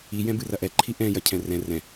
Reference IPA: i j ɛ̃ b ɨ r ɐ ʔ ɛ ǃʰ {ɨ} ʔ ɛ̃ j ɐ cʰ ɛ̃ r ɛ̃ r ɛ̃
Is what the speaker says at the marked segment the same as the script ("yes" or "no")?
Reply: no